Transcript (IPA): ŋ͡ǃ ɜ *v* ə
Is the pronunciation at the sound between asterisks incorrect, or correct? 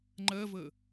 correct